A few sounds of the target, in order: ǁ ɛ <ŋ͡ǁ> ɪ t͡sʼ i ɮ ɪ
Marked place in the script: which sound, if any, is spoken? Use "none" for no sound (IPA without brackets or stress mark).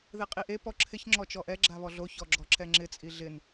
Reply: ŋ͡ǁ